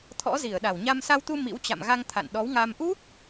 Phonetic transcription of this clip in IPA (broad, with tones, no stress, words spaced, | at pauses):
t̪ʰɔ̰˧˥zi˧˩ə̯ ɗa˧˩wɲa˧m sa˧wt̪u˧ mḭ˧˥wt͡ɕa̰˧˨mɣa˧ŋ t̪ʰa̰˧˨nɗɔ˨˦wŋa˧m ʔu˦˥k̚